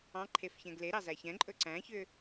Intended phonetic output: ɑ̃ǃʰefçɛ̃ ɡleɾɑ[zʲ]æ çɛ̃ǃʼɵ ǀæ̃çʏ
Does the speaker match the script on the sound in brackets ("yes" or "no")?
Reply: no